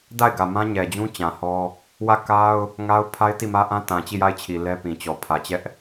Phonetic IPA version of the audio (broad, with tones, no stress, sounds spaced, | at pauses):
d a˦˨ ɪ̯ ɡ ä˨ m ã˦ ɲ ɛ˨ d͡ʑ ũ˦ t͡ɕ ã˨ h ɔ˦ | w ä˦˨ k a˦ ʊ̯ | ŋ a˦ ʊ̯ pʰ a˦ ɪ̯ t i˦˨ m ä˦ ʔ ã˦ t ã˨ t͡ɕ i˦˨ j a˦˨ ɪ̯ t͡ɕʰ i˨ l ɛ˦ p ĩ˨ t͡ɕ ɔ˨ pʰ ä˨ t͡ɕ ɛ˦ ʔ